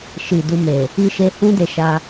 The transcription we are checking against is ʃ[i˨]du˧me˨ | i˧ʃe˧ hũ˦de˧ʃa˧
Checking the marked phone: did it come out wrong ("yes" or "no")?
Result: no